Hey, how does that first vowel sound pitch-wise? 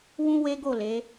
high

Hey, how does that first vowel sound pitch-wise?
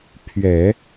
low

